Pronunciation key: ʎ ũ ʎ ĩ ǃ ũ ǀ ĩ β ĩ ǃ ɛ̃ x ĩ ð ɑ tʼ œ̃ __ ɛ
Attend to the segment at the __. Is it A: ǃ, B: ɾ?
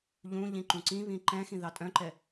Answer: A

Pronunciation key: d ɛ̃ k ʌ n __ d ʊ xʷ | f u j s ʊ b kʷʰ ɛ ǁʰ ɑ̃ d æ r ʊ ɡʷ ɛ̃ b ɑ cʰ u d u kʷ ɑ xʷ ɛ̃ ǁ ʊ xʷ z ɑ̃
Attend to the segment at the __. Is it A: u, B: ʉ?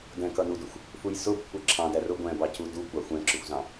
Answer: A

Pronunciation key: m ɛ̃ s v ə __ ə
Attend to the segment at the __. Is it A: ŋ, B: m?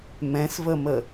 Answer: B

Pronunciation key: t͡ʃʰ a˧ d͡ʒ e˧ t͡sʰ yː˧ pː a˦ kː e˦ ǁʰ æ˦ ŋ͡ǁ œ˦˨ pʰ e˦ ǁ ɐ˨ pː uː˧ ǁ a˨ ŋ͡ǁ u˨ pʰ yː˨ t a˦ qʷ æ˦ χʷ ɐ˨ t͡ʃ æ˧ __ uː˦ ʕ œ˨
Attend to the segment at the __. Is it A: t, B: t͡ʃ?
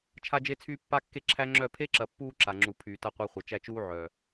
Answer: B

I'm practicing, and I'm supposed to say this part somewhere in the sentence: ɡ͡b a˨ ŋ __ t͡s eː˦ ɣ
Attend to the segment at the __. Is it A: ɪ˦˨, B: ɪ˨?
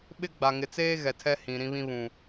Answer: B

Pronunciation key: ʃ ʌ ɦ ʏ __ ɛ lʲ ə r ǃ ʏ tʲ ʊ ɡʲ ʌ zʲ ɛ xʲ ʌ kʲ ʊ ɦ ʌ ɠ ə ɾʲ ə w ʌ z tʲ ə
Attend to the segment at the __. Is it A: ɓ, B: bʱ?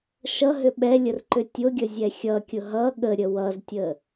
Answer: A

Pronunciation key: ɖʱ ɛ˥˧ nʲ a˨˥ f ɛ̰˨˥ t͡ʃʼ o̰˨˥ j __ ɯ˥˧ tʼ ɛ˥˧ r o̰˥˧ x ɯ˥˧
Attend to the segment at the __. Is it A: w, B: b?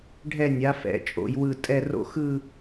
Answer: A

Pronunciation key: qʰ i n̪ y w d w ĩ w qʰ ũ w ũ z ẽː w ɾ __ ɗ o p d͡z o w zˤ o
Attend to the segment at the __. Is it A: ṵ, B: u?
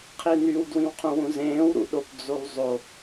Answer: A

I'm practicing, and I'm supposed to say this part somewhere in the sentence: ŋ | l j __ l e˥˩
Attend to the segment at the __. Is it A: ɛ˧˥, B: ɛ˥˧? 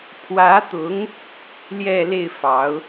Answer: B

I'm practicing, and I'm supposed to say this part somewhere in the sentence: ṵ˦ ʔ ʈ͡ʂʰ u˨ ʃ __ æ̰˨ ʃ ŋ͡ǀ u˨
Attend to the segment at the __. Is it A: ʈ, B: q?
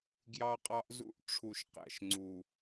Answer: B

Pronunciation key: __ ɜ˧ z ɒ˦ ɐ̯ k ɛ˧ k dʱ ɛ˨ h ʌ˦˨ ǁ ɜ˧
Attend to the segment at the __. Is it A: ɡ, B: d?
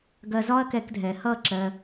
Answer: A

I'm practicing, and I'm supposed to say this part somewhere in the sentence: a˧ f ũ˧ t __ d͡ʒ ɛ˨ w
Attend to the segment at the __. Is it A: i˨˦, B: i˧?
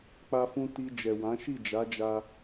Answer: B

